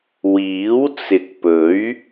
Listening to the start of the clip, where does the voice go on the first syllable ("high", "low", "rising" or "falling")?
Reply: rising